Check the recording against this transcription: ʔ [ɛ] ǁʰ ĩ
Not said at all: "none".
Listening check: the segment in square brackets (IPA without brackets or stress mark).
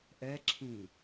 ɛ